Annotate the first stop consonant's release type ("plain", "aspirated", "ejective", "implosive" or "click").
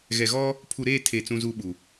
aspirated